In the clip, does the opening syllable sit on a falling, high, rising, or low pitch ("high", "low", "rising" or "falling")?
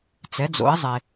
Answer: rising